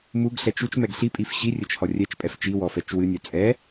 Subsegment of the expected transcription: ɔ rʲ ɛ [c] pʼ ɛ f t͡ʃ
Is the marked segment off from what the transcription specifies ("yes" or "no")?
yes